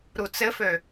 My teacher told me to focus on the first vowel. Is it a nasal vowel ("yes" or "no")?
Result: no